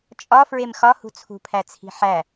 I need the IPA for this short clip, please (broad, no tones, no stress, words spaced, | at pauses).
t͡ʃʼɒ fɹemxɒhṳ t͡sʰṳpʰæt͡sʰi̤ ħæ